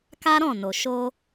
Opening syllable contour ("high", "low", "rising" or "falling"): high